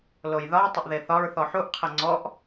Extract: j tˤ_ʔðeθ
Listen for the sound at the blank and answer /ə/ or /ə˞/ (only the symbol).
ə